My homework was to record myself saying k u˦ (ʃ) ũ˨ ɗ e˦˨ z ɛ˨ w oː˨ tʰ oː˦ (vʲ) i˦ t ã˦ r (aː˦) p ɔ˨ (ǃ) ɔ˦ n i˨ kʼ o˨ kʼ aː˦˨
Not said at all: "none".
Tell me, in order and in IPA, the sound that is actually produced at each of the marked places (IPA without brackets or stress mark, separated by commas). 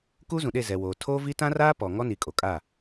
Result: z, v, aː˦, ŋ